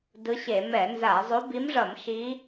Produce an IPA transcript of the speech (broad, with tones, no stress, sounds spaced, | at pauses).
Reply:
d ɯ˧˥ ɕ e˧˩˧ m ɛ˧˩˧ n z a˧˩˧ zˤ o˧˥ b i˧˥ m ʐ ʌ˧˩˧ m ʃ i˧˥